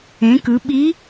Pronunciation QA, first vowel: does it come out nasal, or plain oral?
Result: nasal